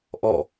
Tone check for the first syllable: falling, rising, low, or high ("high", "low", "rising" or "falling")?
falling